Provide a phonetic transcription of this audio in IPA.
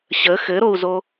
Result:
ɕ ə x ɘ ɾ o u̯ z o

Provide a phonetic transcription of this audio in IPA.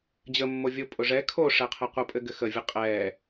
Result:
d͡ʑ ə mː o vʲ o pʼ ʊ ʐ ɛ kʰ o ʂ ɛ qʰ ɐ qʷ ɐ pʼ ɘ ɡ ɘ x ə vʲ ə qʼ ɛ

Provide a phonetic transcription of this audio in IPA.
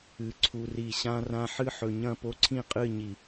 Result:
ɨ˨ ǀʰ u˨ r i˨ ɕ ã˦ r ã˦ ħ ɨ˦ ħ ɵ˨ ɲ ɐ̃˦˨ p o˦ ǀʰ ĩ˦˨ qʼ ɨ˦˨ ɲ i˨

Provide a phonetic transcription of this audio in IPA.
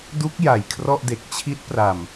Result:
d u˦˥ k̚ j a˨˩ j kʰ r ɔ˥˩ ʔ d e˨˩ k̚ t͡ɕʰ i˦˥ t̚ p r a˨˩ m

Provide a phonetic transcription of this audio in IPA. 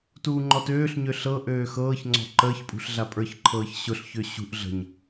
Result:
t uː ŋ͡ǃ ɔ t øː ɬ ɲ ø ɬ ɤ ʔ øː x ɤː ç ŋ͡ǀ ɔ̤ ǃ əː ç pʼ ṳ ɬ ɮ a pʼ ə˞ ç ǃʰ ɤː ç ɕ ʊ ɬ ç ø ɕ ṳ ʔ ɮ ə̤ ɲ

